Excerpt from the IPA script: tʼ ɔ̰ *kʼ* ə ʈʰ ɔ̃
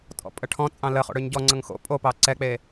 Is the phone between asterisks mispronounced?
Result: yes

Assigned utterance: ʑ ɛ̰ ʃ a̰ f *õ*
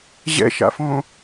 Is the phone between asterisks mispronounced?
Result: no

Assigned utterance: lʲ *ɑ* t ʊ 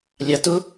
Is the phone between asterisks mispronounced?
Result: no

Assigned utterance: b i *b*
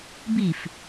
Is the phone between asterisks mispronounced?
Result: yes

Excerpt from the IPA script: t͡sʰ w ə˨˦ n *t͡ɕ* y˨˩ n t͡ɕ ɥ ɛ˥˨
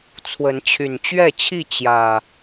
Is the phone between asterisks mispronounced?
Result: yes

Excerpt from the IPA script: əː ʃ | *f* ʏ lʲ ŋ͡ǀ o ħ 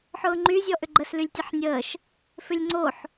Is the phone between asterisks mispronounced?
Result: no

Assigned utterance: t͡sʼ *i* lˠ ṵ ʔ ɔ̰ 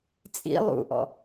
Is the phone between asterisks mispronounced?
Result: yes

